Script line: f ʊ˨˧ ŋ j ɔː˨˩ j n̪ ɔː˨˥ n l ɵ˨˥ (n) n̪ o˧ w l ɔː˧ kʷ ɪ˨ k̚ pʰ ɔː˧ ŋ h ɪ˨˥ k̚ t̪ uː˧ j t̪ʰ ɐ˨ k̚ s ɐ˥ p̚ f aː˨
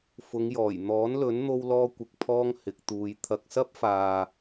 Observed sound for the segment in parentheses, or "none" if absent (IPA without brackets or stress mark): n